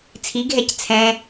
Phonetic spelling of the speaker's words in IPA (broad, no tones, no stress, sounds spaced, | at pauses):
t͡sʰ i ɡʱ ɛ c t͡sʰ ɛ̃